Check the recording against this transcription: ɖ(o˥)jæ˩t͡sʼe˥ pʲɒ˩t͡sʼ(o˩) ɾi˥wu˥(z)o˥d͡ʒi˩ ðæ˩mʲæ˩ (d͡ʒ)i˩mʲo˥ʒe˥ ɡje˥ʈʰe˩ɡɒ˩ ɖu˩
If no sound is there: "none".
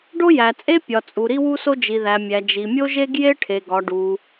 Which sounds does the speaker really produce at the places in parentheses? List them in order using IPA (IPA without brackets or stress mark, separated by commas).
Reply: o˥, u˩, s, d͡ʒ